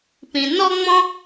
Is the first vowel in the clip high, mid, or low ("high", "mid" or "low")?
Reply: high